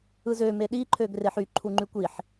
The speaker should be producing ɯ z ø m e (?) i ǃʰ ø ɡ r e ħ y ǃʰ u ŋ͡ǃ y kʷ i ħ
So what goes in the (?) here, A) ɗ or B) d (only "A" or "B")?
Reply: A